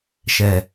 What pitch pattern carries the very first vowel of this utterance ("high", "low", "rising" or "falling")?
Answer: low